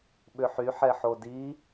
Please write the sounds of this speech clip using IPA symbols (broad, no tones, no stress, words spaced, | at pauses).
ɓʏħy ħɛħodi